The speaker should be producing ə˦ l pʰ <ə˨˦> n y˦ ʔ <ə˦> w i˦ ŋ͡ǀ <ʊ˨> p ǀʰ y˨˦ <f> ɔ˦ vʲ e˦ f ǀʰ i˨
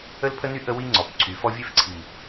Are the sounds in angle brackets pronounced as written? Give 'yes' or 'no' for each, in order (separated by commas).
no, yes, no, yes